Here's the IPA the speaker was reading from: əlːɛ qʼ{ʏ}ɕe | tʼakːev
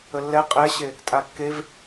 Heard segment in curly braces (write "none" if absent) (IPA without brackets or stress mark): ɛ